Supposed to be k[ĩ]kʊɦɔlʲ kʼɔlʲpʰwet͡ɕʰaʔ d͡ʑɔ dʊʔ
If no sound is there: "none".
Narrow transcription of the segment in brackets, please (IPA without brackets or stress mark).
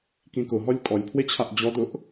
ĩ